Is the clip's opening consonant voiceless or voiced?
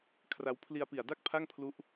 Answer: voiceless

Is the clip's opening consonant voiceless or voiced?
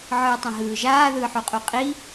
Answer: voiced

